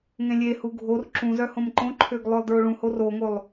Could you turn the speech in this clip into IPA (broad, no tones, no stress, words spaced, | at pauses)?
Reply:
ŋẽlʲehu ɡʱor ǁũzœ hõmǃõǃʰøɡ lˠœlˠdɹoɭũhor oŋolˠ